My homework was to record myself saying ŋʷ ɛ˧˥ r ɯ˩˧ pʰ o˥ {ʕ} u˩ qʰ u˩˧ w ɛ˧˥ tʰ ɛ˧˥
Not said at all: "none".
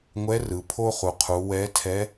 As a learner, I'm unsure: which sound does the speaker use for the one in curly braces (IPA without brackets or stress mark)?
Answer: χ